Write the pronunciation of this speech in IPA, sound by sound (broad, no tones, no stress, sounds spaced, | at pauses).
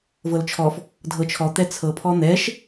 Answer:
v ɤ l t͡ʃʰ ɔ f | dʱ ɤ t͡ʃʰ ɔ t̪ ɛ t͡sʰ ɤ pʰ ɔ n̪ ɛ ʃ